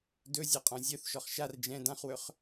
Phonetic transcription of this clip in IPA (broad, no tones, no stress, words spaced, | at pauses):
dɵzʲaqʼɔ̃ zʲœθʃɔχ ʃar d͡ʒɛ̃ dãχwɵχ